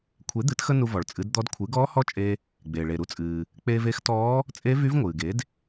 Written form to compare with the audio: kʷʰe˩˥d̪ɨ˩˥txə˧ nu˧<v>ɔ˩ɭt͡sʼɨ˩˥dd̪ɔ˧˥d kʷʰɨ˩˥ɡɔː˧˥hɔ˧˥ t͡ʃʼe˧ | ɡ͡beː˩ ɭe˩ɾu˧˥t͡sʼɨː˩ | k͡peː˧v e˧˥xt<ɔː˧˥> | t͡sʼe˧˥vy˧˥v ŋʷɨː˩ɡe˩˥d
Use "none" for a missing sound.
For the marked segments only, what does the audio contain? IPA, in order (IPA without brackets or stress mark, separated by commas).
v, ɔː˧˥